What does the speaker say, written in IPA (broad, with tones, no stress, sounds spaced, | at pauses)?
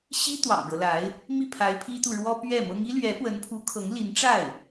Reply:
ɕ i˥ t̪ w ɑ̰˨˩ ŋ ɻ ɤ˦ l a˧˥ ɪ̯ | m i˥˩ pʰ a˧˥ ɪ̯ pʰ i˥ t̪ u˨ ɻ w ɔ˥ p ɥ ɛ˥˩ m ɤ˥ ŋ i˥ l ɥ ɛ˧˥ p w ə˧˥ n pʰ u˧˥ kʰ ɤ˧˥ ŋ l i˧˥ n ʈ͡ʂ a˥˩ ɪ̯